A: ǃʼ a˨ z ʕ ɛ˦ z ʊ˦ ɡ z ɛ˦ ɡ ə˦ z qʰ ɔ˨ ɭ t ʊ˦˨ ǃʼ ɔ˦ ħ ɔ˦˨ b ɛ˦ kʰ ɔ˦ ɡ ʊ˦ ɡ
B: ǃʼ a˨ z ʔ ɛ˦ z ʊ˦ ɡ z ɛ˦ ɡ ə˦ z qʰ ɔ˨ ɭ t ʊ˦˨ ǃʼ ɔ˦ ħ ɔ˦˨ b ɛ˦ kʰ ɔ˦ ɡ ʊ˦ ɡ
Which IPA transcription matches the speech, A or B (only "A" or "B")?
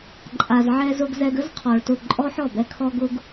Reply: A